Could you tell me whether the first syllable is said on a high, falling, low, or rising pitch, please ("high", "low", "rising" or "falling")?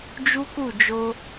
high